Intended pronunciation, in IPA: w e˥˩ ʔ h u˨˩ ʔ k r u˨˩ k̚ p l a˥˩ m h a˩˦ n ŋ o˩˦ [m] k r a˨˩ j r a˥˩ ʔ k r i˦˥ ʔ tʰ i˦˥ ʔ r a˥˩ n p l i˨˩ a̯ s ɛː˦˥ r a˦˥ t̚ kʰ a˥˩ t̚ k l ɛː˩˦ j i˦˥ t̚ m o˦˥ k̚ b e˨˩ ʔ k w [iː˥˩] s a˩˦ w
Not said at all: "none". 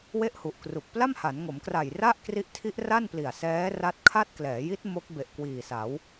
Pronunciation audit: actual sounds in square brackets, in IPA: m, iː˨˩

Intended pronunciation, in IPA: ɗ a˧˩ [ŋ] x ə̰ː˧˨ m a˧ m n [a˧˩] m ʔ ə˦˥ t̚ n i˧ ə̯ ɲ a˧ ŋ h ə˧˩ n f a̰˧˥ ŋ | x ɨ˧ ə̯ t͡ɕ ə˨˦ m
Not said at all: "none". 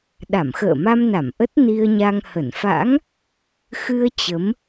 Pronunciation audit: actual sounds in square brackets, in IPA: m, a˧˩

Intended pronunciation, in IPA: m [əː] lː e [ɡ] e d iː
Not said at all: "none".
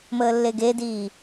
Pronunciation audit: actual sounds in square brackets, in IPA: əː, ɡ

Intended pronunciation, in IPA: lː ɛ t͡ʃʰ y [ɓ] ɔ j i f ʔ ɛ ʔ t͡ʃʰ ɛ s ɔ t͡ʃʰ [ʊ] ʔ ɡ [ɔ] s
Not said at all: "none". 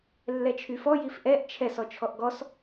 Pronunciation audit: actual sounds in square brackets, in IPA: f, ɔ, ɔ

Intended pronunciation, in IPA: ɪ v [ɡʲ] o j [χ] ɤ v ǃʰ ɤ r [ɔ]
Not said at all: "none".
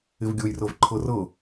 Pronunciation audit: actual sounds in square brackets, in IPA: ɡʲ, r, ɤ

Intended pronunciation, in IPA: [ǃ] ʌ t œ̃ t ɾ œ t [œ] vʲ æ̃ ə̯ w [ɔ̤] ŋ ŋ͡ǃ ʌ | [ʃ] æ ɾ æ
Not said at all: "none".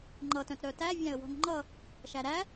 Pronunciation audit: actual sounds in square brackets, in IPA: ŋ͡ǃ, æ, ɔ̤, ʃ

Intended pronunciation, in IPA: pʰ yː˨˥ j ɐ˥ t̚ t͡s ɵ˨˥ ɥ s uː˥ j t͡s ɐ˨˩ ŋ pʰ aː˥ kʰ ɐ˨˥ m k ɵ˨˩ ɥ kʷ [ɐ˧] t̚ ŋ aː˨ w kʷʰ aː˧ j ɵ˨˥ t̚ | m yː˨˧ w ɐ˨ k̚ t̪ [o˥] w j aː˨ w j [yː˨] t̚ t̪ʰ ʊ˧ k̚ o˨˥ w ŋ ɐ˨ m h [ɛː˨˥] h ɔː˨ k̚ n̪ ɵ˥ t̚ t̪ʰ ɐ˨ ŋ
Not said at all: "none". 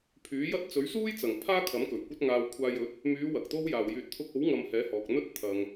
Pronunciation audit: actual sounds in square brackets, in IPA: ɐ˧, o˥, yː˨, ɛː˨˥

